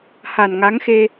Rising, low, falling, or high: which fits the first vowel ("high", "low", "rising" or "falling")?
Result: low